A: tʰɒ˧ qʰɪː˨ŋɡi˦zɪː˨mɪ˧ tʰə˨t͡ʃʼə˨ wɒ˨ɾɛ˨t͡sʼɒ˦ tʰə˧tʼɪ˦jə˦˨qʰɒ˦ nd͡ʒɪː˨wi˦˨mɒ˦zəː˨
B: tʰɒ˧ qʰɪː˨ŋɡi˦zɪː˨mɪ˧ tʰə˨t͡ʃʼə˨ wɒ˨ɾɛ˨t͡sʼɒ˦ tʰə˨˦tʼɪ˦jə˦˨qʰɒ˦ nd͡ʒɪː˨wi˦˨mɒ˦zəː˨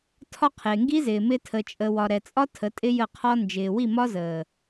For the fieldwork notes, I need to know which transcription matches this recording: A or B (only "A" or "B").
B